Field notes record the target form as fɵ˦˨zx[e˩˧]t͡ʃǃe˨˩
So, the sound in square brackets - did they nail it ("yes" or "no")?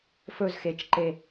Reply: yes